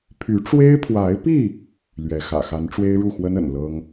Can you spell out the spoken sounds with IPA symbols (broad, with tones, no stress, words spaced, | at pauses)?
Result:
pʰy˨˦ʈ͡ʂwe˦ɪ̯pʰwa˨˦ɪ̯pi˥˨ | lɥɛ˨˦xä̰˨˩ xa˨˦nʈ͡ʂwe˦ɪ̯ɻu˥˨xwə˦n ə̰˨˩nlɤ˦ŋ